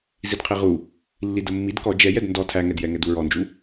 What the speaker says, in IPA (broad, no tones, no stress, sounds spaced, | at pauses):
z i d qʰ i ʁ u | lː i d ə mː i d k ɔ d͡ʒ ɛ j ɛ d n d ɔ tʰ æ ŋ ɛ d j ɛ ŋ ɛ d u ɹ ɔ n d͡ʒ u